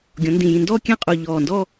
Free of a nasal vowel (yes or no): no